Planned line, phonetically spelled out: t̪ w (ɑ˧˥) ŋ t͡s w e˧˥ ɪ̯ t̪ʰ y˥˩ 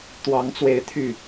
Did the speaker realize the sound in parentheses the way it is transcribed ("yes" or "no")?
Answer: yes